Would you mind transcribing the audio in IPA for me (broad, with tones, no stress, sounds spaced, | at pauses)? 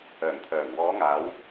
œː˨˩ ŋ t̪ʰ œː˨˩ ŋ w ɔː˨˧ ŋ aː˨˧ w